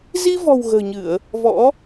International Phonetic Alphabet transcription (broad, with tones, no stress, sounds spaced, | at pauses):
z i˧ v ɔ̤˨˩ w ɣ ə̤ː˨˩ ɲ ɨ˧˩˨ ə̯ | v ɔ̰˧˥